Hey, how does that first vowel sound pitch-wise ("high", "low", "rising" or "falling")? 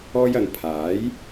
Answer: high